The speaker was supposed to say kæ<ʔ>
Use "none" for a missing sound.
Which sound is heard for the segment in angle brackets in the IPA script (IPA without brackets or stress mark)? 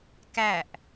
ʔ